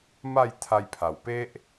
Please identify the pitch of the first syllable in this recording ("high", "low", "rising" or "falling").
falling